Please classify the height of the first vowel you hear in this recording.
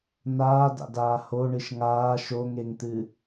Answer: low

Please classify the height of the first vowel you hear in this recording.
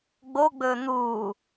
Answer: mid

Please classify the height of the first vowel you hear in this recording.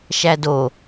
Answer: low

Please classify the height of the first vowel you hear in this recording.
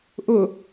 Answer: high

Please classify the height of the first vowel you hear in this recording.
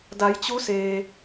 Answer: low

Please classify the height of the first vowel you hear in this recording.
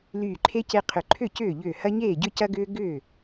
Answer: high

